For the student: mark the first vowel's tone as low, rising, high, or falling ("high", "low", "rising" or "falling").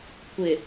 low